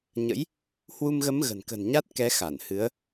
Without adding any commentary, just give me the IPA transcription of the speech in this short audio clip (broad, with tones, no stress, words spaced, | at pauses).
ɲə̰˧˥j | hwu˧mɣə˨˦m ɣə̤˨˩nkə̤˨˩nɲa˦˥t̚kɛ˨˦ xa˧˩nhɨ˨˦ə̯